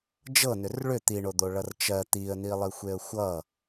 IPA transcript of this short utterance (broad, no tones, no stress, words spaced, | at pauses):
d͡ʒɤnʏr ɭʏ t̪iɳod̪oɭʌr t͡ʃɜ t̪iə̯nilˠixʷeə̯ xʷʌ